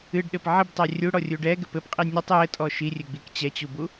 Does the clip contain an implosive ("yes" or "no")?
yes